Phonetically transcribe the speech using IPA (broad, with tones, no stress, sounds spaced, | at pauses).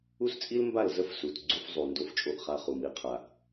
u˦ s t͡sʼ i˦ l m b a˦˨ l z ə˦ f s u˨ t ɡ͡ǀ u˦ f zˤ u˨ n d o˦ f t͡ʃʼ o˦ ʔ χ a˦ χ u˨ m i˦ qʰ a˨ ʔ